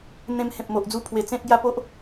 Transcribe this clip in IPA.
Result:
n̪ ẽ˧ m h ẽ˨ p̚ m o˨ ʔ d͡z u˧ pʰ w e˨˩ t͡s ẽ˦ t̚ ɡ j a˥˧ p o˦ ʔ

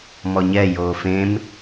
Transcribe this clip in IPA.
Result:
m ɔ ɲ ɛ j oː f ẽ m

